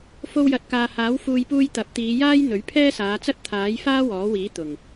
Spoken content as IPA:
f o˧ w j ɐ˨˥ t̚ k aː˨ h aː˨˥ w f uː˨ j p uː˧ j t̪ ɐ˨˥ p̚ t̪ iː˨˧ j aː˥ j n̪ ɵ˨˥ ɥ pʰ ɛː˥ s aː˨˧ t͡s ɐ˥ t̚ t̪ʰ aː˨˥ j f aː˥ w ɔː˨˥ w iː˨˥ t̪ ʊ˨˩ ŋ

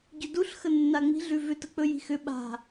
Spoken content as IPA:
ɟ ʏ d u ɬ x ə nː a ŋ͡m i̤ ɮ ʉ v ʏ t ə k͡p ɵ j i̤ x ʏ ɓ a̤

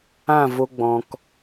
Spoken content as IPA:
ã˦˨ v o˧ ɡ͡b ɔ̃˨ k

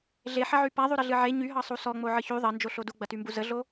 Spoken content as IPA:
ɮ e ħ ɐ ʕ y p a ðˤ y ɾ ə ɮ ɨ ʕ e ɲ y ɦ ɑ sˤ u s ɔ ŋ͡m o ʕ ɨ ç y ðˤ ɐ n d͡ʒ o ɬ o d u ɡ͡b ɐ t y m b u z ə ɮ o

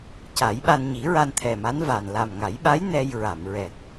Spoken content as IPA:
c a˨˩˦ j ɓ a˧ n ɲ i˨˩˦ ɹ a˧ n t̪ʰ ɛ˨˩ m a˧˥ n v a˨˩ n l a˨˩ m ŋ a˨˩˦ j ɓ a˧˥ j n ɛ˧ j ɹ a˨˩˨ m ɹ ɛ˨˩ k̚

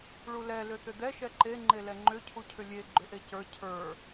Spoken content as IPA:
ɭ u l ɛ l ʏ θ ʏ d̪ ɛ ʃ ɛ ǃ e ŋ͡ǃ e l ɛ ŋ͡ǃ ʏ cʰ u cʰ ʏ lʲ e ɡ͡ǃ ʏ ʔ e c ə˞ cʰ ə˞

